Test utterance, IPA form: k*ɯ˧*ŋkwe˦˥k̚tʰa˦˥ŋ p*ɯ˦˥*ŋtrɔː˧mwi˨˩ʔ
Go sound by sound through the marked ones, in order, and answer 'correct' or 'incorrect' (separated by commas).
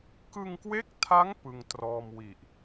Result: correct, incorrect